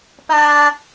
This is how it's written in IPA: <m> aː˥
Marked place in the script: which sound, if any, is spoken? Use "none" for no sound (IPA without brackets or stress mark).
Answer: p